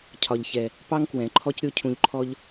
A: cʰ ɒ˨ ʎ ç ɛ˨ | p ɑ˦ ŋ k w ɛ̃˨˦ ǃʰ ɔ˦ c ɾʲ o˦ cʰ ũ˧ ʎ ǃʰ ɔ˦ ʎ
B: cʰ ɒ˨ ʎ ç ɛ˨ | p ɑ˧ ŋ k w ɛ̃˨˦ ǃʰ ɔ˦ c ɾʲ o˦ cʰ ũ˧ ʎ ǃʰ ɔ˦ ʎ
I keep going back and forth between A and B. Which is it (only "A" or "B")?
A